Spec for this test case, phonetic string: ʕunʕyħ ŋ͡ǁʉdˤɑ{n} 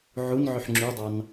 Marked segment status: correct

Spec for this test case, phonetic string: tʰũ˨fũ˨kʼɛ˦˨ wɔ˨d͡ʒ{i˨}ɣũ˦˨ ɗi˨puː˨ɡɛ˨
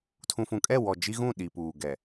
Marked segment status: incorrect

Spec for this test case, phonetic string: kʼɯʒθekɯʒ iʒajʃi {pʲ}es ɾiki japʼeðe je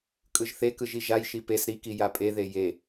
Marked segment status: incorrect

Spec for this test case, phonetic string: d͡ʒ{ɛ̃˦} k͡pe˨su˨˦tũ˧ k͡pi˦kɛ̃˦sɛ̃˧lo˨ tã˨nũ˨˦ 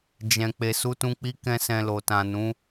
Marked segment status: incorrect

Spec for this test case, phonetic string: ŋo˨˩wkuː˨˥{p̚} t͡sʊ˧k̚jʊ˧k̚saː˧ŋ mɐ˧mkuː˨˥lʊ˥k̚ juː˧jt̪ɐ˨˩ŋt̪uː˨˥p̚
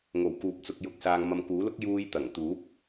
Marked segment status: correct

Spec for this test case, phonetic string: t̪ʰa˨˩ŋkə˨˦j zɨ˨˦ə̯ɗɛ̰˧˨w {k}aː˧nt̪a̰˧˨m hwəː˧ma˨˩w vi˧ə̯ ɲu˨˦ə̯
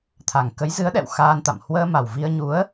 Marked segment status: incorrect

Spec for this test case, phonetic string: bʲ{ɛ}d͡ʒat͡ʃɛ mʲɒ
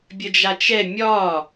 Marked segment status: incorrect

